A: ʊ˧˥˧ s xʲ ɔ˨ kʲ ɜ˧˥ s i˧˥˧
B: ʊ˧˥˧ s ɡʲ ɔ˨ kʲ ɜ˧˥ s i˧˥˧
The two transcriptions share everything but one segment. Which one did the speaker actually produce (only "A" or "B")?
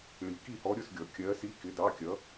B